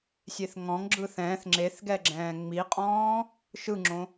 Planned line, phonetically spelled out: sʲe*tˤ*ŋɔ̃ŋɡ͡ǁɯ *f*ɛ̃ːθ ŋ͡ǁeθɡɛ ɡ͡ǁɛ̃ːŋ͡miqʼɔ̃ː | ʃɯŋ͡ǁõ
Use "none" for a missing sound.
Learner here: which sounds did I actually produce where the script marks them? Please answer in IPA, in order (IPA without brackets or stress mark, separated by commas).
θ, θ